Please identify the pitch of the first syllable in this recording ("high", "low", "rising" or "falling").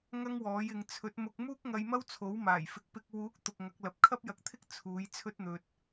high